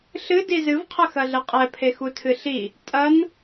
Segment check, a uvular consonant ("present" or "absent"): present